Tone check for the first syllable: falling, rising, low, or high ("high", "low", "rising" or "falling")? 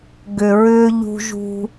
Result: low